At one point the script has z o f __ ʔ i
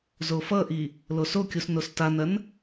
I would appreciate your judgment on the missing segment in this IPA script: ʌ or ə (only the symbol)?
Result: ʌ